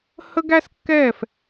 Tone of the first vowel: high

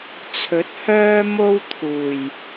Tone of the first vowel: rising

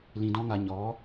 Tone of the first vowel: low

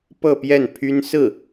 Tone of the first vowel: falling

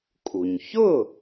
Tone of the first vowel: low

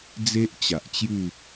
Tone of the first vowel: high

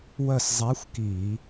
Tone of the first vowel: falling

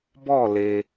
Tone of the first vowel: falling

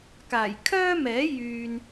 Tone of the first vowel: low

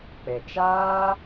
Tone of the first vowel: low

